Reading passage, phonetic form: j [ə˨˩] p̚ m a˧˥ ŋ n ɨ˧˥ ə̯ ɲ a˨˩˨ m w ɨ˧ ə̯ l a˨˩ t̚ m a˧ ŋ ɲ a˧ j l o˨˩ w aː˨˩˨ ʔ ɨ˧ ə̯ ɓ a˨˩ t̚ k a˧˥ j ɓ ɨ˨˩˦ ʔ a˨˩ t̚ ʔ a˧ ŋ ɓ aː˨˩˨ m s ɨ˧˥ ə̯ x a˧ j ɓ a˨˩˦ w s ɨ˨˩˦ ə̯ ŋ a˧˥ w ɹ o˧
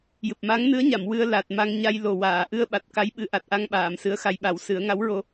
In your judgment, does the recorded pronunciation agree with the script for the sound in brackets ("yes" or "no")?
no